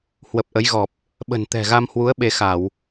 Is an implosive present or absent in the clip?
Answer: present